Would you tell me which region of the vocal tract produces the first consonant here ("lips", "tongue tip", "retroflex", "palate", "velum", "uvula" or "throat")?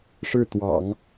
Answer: retroflex